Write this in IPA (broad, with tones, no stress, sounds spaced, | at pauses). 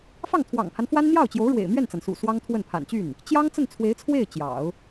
f ɑ˥˩ ŋ t̪ʰ w ɑ̰˨˩ ŋ pʰ a˦ n f w a˥ n n̪ j ɑ˥˩ ʊ̯ t͡ɕ j o˧˥ ʊ̯ ɻ w ḛ˨˩ ɪ̯ m ɥ ɛ˥˩ n t͡s a˩ n s ṵ˨˩ s w ɑ˥ ŋ t̪ʰ w ə˥˩ n pʰ a̰˨˩ n t͡ɕ y˥˩ n | t͡ɕ j ɑ˥ ŋ t͡s ə˥˩ n t͡sʰ w e˧˥ ɪ̯ t͡sʰ w e˥˩ ɪ̯ t͡ɕ j ɑ̰˨˩˦ ʊ̯